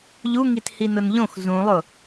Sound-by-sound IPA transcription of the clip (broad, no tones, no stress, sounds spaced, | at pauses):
ʎ u ŋ i t h i n ʊ n ʎ õ x z ũ lˠ ʊ